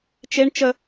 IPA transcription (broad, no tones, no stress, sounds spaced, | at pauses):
t͡ʃ e ɳ t͡ʃ ə